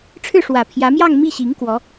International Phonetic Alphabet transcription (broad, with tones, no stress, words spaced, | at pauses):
ʈ͡ʂʰɻ̩˥˩ʂwä˨˩pʰjä˧˥mjɑ˥˧ŋ mi˥˩ɕi˧˥ŋ kwɔ˧˥